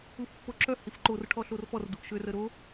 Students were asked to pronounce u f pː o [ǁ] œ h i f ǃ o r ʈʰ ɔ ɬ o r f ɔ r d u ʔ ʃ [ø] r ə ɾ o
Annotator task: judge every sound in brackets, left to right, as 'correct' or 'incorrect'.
correct, correct

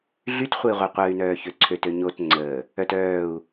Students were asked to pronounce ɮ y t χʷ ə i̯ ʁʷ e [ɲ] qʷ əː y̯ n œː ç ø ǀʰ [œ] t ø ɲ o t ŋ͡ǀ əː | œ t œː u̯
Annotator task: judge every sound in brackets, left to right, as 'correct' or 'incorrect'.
incorrect: none, incorrect: ø

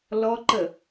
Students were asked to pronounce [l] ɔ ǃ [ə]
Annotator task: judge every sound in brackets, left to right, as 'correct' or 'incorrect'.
correct, correct

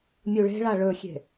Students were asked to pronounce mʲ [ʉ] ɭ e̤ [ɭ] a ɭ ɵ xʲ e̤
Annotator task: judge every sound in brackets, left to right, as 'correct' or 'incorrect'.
incorrect: u, correct

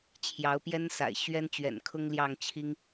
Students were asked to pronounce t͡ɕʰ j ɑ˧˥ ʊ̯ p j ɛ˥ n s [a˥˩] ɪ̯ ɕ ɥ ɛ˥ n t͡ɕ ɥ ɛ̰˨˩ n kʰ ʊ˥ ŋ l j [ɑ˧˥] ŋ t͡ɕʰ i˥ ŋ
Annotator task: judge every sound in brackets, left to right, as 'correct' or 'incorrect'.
incorrect: a̰˨˩, incorrect: ɑ˥˩

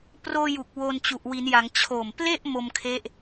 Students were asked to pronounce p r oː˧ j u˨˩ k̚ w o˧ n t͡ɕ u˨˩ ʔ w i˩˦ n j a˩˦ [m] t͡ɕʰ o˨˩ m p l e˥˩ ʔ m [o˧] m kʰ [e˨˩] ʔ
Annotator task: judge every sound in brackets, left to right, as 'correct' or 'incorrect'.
incorrect: ŋ, correct, incorrect: e˦˥

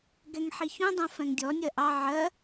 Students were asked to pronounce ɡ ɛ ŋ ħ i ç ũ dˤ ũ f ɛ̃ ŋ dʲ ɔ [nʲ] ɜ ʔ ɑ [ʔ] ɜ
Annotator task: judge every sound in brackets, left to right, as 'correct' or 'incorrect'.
correct, incorrect: ʕ

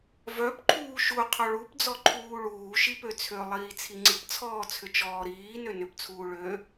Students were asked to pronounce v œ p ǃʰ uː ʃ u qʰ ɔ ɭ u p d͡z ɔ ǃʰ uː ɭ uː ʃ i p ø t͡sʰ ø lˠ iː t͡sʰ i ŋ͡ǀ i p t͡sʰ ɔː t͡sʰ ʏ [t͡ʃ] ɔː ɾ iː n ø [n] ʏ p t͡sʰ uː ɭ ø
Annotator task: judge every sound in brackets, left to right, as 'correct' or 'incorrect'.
correct, correct

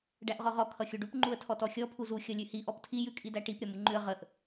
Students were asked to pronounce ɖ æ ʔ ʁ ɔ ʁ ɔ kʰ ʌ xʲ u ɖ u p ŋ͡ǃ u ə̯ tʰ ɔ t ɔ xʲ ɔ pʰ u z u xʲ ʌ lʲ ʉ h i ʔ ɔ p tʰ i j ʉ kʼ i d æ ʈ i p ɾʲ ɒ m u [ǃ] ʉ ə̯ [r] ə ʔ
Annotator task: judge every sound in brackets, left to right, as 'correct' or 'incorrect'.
incorrect: ŋ͡ǃ, incorrect: ʁ

